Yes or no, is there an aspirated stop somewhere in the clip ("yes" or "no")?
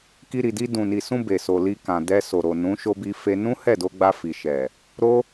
no